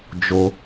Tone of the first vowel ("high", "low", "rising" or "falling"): low